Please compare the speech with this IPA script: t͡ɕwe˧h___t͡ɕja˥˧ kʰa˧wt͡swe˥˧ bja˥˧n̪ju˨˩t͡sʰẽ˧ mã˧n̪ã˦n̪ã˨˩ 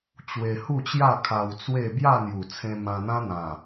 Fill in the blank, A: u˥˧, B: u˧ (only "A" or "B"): A